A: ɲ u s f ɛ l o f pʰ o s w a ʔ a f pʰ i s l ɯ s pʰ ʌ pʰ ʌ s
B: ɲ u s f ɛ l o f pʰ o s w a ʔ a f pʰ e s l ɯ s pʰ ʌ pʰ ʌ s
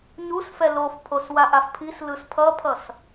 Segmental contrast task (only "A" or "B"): A